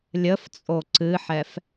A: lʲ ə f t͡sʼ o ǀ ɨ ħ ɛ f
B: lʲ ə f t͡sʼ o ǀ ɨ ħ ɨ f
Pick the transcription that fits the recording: A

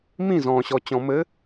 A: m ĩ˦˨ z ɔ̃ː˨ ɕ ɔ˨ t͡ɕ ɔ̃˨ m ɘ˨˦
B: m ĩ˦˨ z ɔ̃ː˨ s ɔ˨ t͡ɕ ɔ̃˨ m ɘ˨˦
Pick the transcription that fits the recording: A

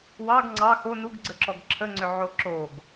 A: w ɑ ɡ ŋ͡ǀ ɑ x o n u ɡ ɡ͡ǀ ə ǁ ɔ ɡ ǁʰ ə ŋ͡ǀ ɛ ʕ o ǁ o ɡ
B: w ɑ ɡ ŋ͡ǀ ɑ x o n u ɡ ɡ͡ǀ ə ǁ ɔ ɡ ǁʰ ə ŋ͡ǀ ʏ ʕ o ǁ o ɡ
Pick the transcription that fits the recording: B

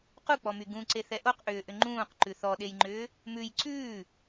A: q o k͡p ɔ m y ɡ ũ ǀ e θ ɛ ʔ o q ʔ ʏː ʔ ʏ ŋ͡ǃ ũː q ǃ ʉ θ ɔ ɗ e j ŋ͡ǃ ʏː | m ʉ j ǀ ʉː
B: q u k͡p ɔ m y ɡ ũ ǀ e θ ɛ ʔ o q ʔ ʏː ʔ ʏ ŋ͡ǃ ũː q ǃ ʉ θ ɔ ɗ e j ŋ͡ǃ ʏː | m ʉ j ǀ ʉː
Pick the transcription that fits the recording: B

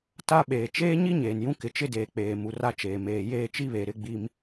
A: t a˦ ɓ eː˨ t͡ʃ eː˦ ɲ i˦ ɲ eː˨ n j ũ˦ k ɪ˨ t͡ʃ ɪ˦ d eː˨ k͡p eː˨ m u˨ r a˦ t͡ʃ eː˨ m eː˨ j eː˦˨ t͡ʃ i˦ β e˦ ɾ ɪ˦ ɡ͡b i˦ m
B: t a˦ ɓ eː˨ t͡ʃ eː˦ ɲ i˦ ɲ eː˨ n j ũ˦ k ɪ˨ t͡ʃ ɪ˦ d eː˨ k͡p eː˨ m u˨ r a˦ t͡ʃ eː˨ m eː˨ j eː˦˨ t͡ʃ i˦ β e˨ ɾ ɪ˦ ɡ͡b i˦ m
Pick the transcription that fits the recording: B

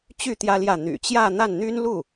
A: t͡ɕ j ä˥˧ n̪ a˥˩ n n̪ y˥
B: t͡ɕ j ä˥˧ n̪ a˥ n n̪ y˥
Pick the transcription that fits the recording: A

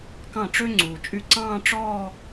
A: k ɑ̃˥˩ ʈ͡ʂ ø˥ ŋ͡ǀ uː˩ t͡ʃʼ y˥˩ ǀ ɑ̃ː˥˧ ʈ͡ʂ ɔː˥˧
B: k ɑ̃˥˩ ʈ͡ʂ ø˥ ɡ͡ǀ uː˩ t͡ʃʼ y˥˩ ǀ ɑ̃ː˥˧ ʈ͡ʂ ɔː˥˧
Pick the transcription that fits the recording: A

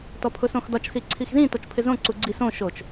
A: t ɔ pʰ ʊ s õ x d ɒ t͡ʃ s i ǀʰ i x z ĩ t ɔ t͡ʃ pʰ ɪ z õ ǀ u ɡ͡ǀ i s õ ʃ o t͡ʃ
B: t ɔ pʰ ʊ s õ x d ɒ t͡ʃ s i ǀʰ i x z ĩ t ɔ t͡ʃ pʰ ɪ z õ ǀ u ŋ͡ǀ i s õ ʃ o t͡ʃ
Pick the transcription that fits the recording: A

